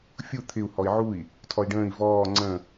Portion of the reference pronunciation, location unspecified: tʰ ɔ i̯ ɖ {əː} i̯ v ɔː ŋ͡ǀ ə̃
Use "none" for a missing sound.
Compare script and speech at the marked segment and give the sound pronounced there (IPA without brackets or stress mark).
ə̃ː